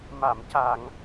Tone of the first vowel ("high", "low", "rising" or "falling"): low